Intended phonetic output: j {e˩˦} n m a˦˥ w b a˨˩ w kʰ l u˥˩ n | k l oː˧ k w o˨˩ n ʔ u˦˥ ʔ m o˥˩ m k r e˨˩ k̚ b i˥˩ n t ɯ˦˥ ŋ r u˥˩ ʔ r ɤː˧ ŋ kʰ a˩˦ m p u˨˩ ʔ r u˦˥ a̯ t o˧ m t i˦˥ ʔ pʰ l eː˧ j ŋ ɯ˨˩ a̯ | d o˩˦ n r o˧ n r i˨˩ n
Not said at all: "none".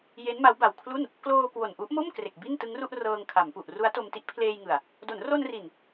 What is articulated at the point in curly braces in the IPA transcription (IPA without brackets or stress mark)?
e˦˥